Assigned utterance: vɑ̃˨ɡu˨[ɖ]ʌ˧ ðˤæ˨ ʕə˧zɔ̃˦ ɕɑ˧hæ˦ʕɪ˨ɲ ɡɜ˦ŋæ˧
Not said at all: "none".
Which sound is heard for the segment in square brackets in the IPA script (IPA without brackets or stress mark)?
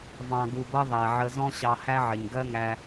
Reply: b